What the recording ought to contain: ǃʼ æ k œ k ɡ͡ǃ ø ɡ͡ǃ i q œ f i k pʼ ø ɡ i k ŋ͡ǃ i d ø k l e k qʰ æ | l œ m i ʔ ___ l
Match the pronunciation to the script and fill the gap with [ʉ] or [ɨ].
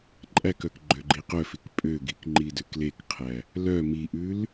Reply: ʉ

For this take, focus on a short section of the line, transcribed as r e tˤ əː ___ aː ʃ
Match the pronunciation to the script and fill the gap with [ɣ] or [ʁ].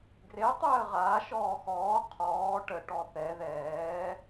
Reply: ʁ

